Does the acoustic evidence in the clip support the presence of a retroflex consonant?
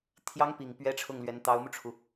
yes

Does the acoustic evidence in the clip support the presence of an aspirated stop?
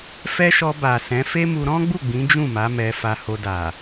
no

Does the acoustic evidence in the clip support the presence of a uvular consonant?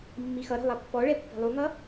no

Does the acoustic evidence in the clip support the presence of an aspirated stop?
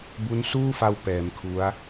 yes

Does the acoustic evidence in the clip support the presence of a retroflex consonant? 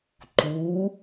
no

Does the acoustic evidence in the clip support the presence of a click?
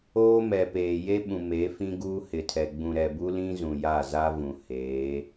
no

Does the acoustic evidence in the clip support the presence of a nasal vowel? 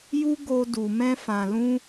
yes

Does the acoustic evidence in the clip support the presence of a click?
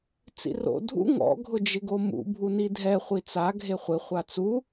no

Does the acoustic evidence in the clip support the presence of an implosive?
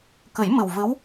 no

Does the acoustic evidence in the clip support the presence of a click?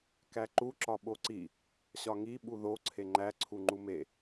yes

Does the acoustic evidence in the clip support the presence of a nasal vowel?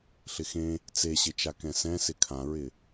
yes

